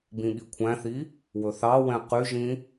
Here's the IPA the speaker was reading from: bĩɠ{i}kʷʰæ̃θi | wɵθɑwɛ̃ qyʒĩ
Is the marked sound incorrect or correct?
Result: correct